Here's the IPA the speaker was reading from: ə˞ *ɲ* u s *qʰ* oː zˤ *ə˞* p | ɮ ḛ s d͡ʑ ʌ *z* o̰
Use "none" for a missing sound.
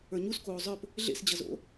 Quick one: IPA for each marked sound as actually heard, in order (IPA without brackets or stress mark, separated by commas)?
ɲ, k, ə˞, z